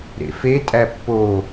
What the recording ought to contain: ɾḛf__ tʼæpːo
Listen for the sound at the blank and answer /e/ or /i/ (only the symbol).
e